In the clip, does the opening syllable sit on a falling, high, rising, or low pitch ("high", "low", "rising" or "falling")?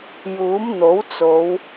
rising